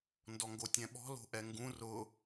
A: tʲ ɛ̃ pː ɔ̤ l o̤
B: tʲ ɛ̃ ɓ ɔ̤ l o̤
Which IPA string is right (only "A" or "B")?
B